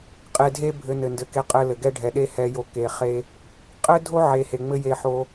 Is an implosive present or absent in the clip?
present